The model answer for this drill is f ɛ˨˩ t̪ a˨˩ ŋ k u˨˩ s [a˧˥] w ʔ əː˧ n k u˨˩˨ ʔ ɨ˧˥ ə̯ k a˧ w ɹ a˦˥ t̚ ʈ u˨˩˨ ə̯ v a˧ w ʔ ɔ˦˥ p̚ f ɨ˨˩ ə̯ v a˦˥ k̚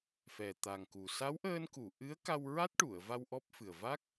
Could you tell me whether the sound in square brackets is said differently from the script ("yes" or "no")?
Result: no